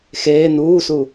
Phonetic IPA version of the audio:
xeː nuːsu

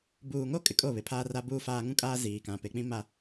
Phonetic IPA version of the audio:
buː˨ŋo˦ kʼɪ˨kʼo˦˨βɪ˨˦ pʰaː˦ra˦buː˦faː˦ ŋũ˦kʼaː˦ ziː˨kã˨ pe˨k͡pĩ˦ma˦

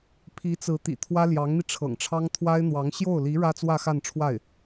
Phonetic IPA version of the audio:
pʰi˧˥t͡sɹ̩˧˥ t̪ḭ˨˩t̪ʰwä˥ljɑ˧˥ŋn̪i˧ ʈ͡ʂʰɤ̰˨˩ŋʈ͡ʂʰɑ˥ŋ t̪ʰwa˥ɪ̯n̪wɑ˧˥ŋ ɕjo˥˩ʊ̯li˧˥ ɻä˥t͡swä˥˧xa˥˧nʈ͡ʂʰwa˥˩ɪ̯

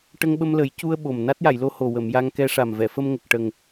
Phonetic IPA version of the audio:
ʈə˧ŋɓə˧mlə˨˩˦j cu˧ə̯ ɓo˨˩m na˦˥t̚ja˨˩˨jlo˧ho˨˩ wə˨˩˨mja˧ŋkɛ˧ ʂa˨˩mvɛ˨˩˨ fə˧mŋə˨˩k̚ʈə˨˩ŋ

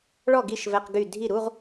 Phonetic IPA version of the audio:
ɭɔ˥˩ɡi˥˩ʃ vɛ˧˥˧qɡy˥˩ dʱi˥˩ɾu˧˥˧ʁ

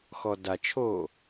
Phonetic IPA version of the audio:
xɔdat͡ʃʰoː

